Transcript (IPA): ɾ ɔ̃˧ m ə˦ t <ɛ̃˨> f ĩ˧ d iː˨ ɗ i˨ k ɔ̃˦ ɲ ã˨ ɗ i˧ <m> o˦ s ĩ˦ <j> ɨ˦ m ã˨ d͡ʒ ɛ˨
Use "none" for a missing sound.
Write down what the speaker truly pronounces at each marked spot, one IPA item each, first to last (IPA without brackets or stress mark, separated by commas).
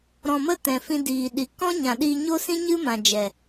ɛ̃˨, ɲ, ɲ